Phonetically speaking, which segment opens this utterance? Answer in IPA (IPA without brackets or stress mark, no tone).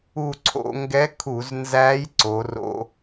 u